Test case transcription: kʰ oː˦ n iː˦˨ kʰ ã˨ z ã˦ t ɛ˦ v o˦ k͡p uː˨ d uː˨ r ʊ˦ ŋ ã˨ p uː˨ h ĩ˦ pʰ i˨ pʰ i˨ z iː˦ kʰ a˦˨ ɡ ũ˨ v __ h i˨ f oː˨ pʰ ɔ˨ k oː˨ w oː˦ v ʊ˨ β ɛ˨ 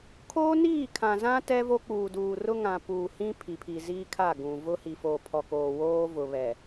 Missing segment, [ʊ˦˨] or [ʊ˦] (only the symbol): ʊ˦